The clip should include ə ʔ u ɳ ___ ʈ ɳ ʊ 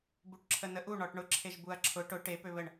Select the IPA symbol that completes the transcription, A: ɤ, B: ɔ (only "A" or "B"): B